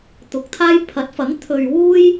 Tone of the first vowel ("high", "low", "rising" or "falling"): rising